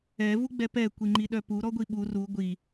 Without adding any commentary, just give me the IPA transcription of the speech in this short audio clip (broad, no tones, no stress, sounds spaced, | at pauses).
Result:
ɛ v u ɡ͡b ɛ p ɛ kʷ i ŋ͡ǃ i ɗ œ p u ɾ ɔ ɡʷ i ɓ u r u ɡʷ i